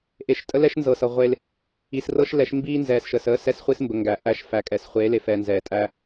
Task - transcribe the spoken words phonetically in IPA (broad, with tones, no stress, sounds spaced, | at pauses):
ʔ e˨ ʃ tʼ ə˦ l ɛ˦ ʃ n z ɤ˨ s ɤ˨ ʁʷ e˦ l | i˨ s r ɤ˦ ʃ l ɛ˨˦ ʃ m b iː˦ n z ɛː˨ s ʃ əː˨ s əː˦ s ɛ˦ s χʷ i˦ s m b ə˨ ŋ ɡ æ˨ ʔ æ˦˨ ʃ f æ˨ kʼ ɛ˨ s χʷ eː˨˦ l e˨ f ɛː˨ n z ɛː˨ tʼ æ˦